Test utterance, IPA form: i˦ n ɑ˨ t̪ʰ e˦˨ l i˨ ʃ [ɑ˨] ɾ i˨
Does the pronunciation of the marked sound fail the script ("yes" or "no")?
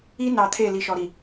yes